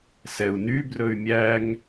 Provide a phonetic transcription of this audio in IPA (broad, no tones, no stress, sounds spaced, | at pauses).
s ɛ u̯ n y b r ɵ y̯ mʲ æ ŋ